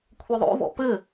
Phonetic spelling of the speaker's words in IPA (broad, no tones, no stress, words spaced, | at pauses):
kʷʰɘðˤo̰vɔ̰ pɘ